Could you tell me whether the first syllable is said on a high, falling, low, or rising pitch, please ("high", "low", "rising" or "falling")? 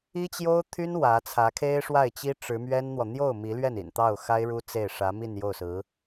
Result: high